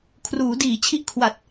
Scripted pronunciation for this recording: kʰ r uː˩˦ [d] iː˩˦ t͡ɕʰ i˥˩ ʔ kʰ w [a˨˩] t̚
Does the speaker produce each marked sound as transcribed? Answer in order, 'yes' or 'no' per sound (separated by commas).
yes, yes